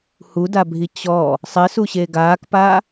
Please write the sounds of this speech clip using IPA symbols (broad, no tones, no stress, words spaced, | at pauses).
hudabʱi t͡ɕɔ | sˤɪsuɕe ɡaːkpaː